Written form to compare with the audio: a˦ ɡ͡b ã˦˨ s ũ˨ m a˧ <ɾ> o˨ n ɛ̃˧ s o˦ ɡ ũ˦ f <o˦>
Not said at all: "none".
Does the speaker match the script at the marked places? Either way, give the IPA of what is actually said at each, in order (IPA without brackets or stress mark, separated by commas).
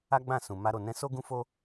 ɾ, o˦